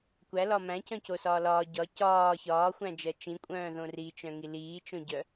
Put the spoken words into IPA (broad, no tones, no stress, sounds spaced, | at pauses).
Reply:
kʷ æ l ɒ m æ̃ c œ̃ c o s ɒː l ɒː ɟ ɒ c ɒː ç ɒː xʷ æ̃ d͡ʒ ɜ t͡ʃ ĩ kʷʼ œ̃ː ð õ r i t͡ʃ œ̃ ŋ i l iː t͡ʃ õ ɟ œ